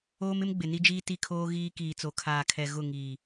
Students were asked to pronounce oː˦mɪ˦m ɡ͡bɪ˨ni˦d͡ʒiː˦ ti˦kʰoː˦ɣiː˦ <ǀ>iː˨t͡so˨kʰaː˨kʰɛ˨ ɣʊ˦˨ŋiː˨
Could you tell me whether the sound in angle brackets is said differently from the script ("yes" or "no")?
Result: yes